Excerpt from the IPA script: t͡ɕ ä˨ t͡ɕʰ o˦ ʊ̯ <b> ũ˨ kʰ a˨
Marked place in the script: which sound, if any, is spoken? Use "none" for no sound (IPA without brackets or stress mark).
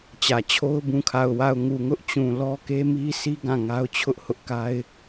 b